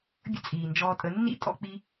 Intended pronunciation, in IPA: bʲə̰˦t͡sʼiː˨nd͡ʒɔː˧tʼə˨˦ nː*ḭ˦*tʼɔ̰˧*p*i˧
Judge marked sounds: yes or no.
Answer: yes, no

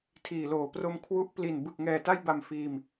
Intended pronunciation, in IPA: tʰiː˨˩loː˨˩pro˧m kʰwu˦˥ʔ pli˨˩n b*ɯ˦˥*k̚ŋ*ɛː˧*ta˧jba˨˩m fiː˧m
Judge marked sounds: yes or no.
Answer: no, no

